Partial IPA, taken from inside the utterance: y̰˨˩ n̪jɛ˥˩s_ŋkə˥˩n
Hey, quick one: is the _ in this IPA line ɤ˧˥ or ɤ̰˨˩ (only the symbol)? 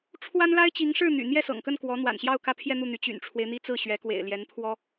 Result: ɤ̰˨˩